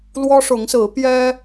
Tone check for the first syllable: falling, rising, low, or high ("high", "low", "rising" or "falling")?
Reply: high